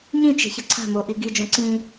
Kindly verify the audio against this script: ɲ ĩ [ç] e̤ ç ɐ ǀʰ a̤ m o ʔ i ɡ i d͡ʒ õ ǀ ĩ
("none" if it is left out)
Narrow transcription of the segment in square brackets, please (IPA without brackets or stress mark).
t͡ʃ